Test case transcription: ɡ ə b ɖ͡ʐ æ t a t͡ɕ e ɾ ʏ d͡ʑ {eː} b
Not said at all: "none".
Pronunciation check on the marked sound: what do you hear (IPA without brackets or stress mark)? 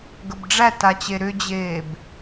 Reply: eː